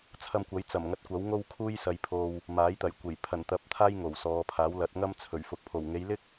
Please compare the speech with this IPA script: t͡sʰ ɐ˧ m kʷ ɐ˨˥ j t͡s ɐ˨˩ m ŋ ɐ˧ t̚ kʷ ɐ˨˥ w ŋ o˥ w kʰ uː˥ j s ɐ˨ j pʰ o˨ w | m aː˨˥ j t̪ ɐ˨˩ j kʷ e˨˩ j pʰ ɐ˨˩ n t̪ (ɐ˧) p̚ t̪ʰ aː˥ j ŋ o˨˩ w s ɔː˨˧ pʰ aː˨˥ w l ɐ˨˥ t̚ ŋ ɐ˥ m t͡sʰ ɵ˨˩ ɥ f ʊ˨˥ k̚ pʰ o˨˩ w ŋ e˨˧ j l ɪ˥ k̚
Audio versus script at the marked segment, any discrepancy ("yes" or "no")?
yes